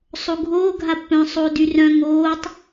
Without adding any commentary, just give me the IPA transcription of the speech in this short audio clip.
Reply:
sˤ o ɡʱ oː ɡʱ a pː œ̃ sˤ oː d y r œ̃ ŋ oː tˤ

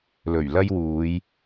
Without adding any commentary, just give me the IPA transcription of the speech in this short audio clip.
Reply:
l ɵ˨˩ ɥ l ɐ˥ j w uː˨˧ j

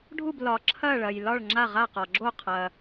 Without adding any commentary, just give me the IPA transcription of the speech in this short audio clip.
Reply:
ɖʱ u˥˨ b l ɒ˨ ǁʰ ɐ˥˨ ɭ ɐ˨ j l ɒ˥˨ ɭ ŋ͡ǁ a˥˨ ʁ a˥˨ q ɒ˨ ɡ͡ǁ o˥˨ qʰ ɐ˨

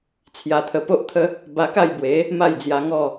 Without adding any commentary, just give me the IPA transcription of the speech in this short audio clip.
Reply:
t͡sʰ j a˧ t̪ʰ ə˧ p o˦ ʔ t̪ʰ ə˦ | b a˧ k a˥˧ j b w e˨˦ | m a˥˧ j d͡z j a˧ ŋ ɔ˥˧

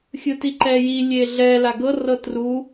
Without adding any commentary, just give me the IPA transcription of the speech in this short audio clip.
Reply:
xʲ ɯ t i ǃ ɛ j i lʲ e ɮ ɛ l a ɡ ɤ r ɤ t r u

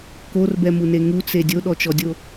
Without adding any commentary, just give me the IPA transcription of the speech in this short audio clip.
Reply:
k o r b ɛ m u n e ŋ u t͡s e dʲ o ɗ ɔ t͡ʃ ɔ dʲ o

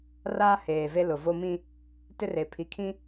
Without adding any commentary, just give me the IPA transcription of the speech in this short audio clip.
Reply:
r aː˦ h eː˨ v e˦ l ʊ˨ v o˦ m ĩ˦ | t ɪ˦ r e˨ pʰ i˨ kʰ ĩ˦

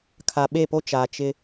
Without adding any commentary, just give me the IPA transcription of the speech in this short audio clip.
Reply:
kʰ a˨ ɓ e˦˨ p o˦ t͡ʃ aː˨ t͡ʃ ɪ˦

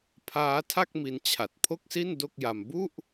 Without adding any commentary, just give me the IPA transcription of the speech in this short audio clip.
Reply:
pʰ aː˦˥ tʰ a˥˩ k̚ m i˧ n t͡ɕʰ a˨˩ t̚ pʰ o˥˩ k̚ s i˥˩ n d o˥˩ k̚ j a˧ m b u˥˩ ʔ

